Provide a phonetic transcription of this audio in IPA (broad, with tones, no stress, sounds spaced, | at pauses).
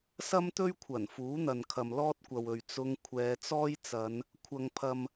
s ɐ˥ m t̪ ɵ˥ ɥ kʷʰ ɐ˨˩ n f uː˨˥ n̪ ɐ˨ n kʰ ɐ˨ m l ɔː˥ t̚ kʷ ɐ˨ w ɵ˨ ɥ t͡s ʊ˧ ŋ kʷʰ ɛː˨˧ t͡s ɔː˥ j t͡s ɐ˨˧ n | kʷʰ ɐ˨ ŋ pʰ ɐ˨ m